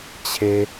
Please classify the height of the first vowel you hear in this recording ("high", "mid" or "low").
mid